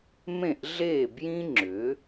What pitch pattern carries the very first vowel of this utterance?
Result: falling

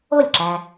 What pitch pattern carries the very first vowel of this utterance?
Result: falling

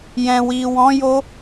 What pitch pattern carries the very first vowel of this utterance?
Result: low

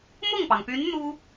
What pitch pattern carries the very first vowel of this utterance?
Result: falling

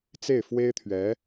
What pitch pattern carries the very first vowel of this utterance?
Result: falling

